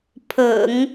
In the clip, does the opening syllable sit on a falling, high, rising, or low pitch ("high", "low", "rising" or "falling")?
low